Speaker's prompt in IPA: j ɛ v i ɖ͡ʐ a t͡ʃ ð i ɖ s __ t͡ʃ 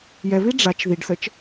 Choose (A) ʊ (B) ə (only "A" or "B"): B